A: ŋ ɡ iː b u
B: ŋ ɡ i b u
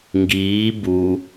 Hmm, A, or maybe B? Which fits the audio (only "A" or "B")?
A